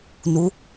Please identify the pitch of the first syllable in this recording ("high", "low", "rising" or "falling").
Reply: rising